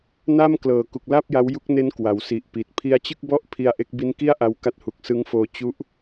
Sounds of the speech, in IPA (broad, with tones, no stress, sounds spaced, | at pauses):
n a˥˩ m k l ɤː˨˩ k u˨˩ k̚ l a˥˩ p̚ j a˦˥ w j u˦˥ k̚ n e˦˥ n k w a˩˦ w s i˨˩ ʔ p i˨˩ t̚ pʰ i˧ a̯ t͡ɕ ɯ˥˩ k̚ b ɔ˥˩ ʔ pʰ i˧ a̯ ʔ e˦˥ k̚ b i˦˥ n k i˥˩ a̯ ʔ a˧ w k a˦˥ t̚ h u˨˩ k̚ s ɯ˦˥ ŋ f oː˧ t͡ɕ u˦˥ ʔ